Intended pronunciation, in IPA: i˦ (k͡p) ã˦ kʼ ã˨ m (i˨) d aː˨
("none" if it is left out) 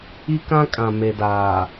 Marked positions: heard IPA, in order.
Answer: k, e˨

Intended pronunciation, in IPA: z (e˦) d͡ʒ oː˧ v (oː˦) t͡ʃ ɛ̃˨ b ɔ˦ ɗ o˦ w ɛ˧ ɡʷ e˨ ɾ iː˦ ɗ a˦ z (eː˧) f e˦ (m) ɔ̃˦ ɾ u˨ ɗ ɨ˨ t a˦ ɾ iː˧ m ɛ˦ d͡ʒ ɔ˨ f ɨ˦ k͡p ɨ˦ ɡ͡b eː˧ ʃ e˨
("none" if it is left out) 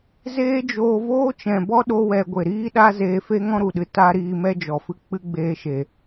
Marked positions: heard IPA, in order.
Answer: eː˦, oː˦, eː˧, ŋ

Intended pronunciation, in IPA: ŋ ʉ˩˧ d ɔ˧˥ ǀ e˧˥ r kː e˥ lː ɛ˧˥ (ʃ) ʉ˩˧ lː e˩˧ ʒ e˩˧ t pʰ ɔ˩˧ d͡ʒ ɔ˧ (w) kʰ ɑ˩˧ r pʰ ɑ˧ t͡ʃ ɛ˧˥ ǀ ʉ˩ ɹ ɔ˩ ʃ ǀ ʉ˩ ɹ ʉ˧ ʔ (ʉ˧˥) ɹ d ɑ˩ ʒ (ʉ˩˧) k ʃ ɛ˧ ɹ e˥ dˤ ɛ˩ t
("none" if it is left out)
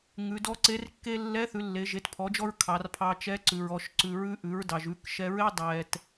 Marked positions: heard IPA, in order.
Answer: θ, ɹ, ʉ˩˧, ʉ˩˧

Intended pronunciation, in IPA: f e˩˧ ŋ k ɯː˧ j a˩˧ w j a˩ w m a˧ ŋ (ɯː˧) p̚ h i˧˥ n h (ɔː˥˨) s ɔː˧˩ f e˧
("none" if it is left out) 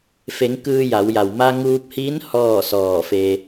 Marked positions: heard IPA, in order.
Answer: uː˧, ɔː˥˨

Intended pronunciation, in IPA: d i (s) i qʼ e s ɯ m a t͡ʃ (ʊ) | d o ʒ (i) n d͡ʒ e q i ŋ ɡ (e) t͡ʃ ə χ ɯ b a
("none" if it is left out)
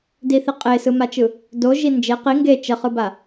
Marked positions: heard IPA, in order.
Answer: θ, ɯ, i, e

